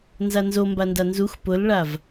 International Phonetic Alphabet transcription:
n z a n z o m b a n d a n z u x p ʊ l ɭ a v

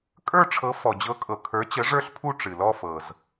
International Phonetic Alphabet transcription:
kʼ ə˞˥˧ ʈ͡ʂʰ ɤ˨˥ f ɔ˩ d͡ʑ ɤ˨˥ kʼ ɤ˩ kʰ ə˞˨˥ t͡ɕ ə˨˥ ʐ ə˞˥˧ ɬ pʰ u˥˧ ʈ͡ʂ ɨ˩ l ɔ˥˧ f ɤ˩ z

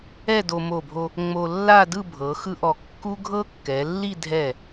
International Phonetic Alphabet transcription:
ɛ˥˧ d o˧ m o˧˩ bʱ o˧ | ŋ͡m o˧ lː a˥˧ d ɯ˥˧ bʱ ɤ˩˧ x ɯ˥ ʔ ɔ˧˩ kː u˥ ɡʱ ɤ˥ kː ɛ˩˧ lː i˥˧ dʱ ɛ˧˩

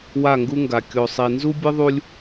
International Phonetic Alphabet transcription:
w a˦˨ ŋ ɡ u˦ ŋ ɡ a˨ kʲ o˨ sˤ i˨ n z u˦ bʲ ɨ˦ ðˤ u˦ lʲ

